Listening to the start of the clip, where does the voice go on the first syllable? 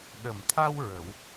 low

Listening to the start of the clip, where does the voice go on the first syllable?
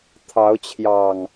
rising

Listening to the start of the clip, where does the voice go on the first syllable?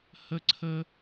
high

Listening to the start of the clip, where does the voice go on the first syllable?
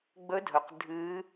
rising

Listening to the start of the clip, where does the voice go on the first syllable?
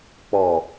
low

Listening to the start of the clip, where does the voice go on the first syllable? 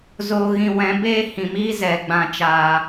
low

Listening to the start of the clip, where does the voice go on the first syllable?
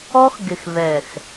high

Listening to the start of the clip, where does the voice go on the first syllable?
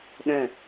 falling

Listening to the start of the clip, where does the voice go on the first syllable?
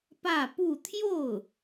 falling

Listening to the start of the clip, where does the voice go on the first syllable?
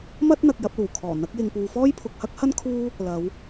high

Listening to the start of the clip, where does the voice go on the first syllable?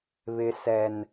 high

